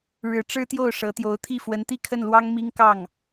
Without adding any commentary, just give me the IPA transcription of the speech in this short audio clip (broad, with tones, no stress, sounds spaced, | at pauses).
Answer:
ɻ ɻ̩˧˥ ʈ͡ʂ ɻ̩˥ t̪ j o˥˩ ʊ̯ ʂ ɤ˧˥ t̪ j o˧˥ ʊ̯ t̪ʰ i˥˩ f w ə˧˥ n t̪ i˥˧ kʰ ə˥˩ n l w ɑ˥ ŋ m i˥ ŋ k ɑ˥˩ ŋ